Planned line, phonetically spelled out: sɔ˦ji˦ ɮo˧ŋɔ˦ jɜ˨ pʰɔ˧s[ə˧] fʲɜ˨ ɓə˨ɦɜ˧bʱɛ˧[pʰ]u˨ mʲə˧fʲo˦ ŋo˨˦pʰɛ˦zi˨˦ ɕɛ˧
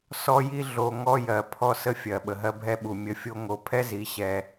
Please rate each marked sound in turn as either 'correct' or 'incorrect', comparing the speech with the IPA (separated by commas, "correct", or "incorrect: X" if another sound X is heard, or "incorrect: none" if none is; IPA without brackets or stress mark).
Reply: correct, incorrect: ɓ